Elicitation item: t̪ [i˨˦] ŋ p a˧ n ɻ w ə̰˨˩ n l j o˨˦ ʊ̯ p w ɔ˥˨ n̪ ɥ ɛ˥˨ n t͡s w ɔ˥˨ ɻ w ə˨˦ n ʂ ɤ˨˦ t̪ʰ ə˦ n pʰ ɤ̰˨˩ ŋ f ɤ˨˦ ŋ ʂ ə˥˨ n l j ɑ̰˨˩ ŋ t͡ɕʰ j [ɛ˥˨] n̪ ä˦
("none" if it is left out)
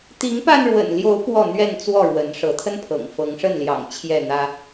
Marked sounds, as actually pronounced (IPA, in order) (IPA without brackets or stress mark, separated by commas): i˨˦, ɛ˥˨